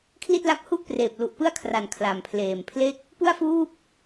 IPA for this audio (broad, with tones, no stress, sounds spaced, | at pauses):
kʰ l i˥˩ t̚ l a˦˥ k̚ h u˥˩ ʔ p r eː˨˩ p̚ l u˨˩ ʔ p ɯ˥˩ a̯ kʰ r a˨˩ n kʰ l a˨˩ m pʰ l eː˨˩ m pʰ l e˥˩ k̚ | p u˥˩ a̯ f uː˥˩ p̚